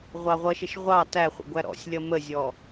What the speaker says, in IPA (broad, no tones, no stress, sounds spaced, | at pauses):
ʁʷ ɑ ʁʷ ʌ ʃ ɪ ʃ ʁʷ ɑ t æ χʷ ə̰ ɡʷ æ ɾ ɔ̰ sʲ lʲ ʌ m ə zʲ ɔ